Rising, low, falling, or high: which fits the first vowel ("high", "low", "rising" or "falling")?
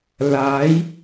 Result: rising